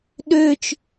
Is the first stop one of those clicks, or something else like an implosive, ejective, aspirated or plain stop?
implosive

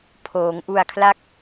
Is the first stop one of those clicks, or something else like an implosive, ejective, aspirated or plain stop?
aspirated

